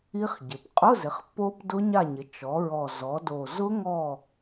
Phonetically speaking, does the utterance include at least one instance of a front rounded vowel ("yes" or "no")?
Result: no